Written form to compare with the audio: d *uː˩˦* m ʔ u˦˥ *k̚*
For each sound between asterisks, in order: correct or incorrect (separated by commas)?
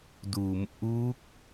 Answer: correct, correct